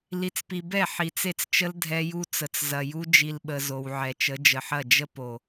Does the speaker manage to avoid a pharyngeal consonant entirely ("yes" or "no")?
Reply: no